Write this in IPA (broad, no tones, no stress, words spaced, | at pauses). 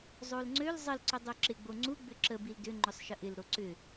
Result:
zˤolŋ͡ǀøl zˤəl ǀʏdˤøǁɪ ɡ͡boŋ͡ǀu ɡ͡bʏǁə bildʏ ŋ͡ǃʏsˤʃəʔɪl ɾoǀʏ